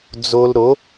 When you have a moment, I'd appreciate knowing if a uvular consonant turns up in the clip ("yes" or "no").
no